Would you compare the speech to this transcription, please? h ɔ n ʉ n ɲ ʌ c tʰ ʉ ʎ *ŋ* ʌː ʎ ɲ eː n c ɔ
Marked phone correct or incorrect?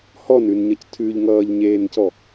correct